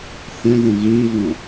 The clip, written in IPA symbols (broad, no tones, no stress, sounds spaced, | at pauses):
θ ɛ̃ ð ə̃ ɣ i v ɔ̃